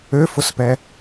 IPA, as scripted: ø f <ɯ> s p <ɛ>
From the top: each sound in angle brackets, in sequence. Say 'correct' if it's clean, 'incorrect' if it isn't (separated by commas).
incorrect, correct